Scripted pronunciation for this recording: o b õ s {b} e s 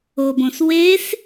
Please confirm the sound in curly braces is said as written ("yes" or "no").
no